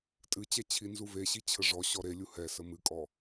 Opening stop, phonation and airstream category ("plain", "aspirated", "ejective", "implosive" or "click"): ejective